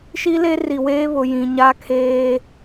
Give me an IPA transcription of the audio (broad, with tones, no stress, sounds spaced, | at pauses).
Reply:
ʃ i˦ l e˦ r i˨ w eː˦ β ʊ˨ j ĩ˨ ɲ a˦ kʰ eː˦